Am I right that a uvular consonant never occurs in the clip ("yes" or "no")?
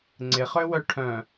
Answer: no